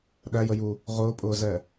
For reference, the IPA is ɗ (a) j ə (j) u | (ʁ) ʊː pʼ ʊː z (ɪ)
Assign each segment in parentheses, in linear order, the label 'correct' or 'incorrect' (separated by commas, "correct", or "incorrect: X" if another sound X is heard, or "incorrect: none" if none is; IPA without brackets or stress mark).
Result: incorrect: æ, correct, correct, incorrect: ɛ